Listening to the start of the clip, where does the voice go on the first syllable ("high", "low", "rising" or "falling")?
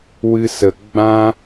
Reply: high